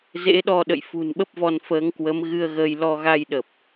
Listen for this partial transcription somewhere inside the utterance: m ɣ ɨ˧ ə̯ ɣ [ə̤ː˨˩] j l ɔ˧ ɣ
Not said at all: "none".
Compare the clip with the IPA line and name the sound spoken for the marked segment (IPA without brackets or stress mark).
əː˧